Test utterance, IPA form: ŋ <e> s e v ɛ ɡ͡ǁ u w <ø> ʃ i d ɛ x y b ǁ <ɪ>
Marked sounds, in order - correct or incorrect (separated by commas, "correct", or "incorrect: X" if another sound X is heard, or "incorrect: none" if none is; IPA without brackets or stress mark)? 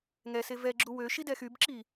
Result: incorrect: ɛ, correct, incorrect: i